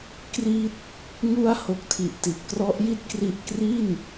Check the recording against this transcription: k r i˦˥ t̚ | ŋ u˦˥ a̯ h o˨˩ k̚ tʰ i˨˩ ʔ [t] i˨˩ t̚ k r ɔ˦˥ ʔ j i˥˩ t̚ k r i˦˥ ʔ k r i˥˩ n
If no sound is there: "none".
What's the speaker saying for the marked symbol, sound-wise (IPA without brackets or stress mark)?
t